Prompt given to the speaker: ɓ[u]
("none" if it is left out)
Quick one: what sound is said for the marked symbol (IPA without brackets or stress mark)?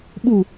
u